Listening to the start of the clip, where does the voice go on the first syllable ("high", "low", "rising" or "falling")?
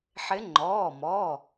rising